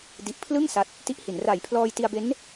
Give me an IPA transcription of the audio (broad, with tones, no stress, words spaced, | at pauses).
di˨˩ʔpʰlɯ˥˩ŋ sa˦˥t̚ | ti˦˥ʔhi˩˦n ra˨˩jpʰlɔː˧j ti˧a̯be˦˥n